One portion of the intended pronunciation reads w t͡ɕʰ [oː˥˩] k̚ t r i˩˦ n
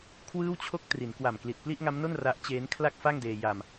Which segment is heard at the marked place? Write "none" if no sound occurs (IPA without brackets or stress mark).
o˥˩